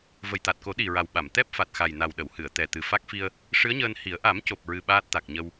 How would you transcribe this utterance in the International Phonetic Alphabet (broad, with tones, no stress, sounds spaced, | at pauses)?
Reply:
v ə˨˩ j t̪ a˨˩ t̚ k o˨˩˦ ɗ i˨˩ ɹ a˨˩ w ɓ a˨˩˨ m t̪ ɛ˦˥ p̚ f a˨˩ t̚ x a˨˩ j n a˨˩ w ɗ ə˨˩˨ w h ɨ˨˩˨ ə̯ t̪ ɛ˨˩ t̪ ɨ˨˩ f a˦˥ k̚ f i˧ ə̯ | ʂ ɨ˧˥ ə̯ ɲ əː˧ n h i˨˩˦ ə̯ ʔ a˨˩˦ m c o˨˩ p̚ ɹ ɨ˧ ɓ aː˦˥ t̚ t̪ a˨˩ k̚ ɲ ə˧ w